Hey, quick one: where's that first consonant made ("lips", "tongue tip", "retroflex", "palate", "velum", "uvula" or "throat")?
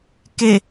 velum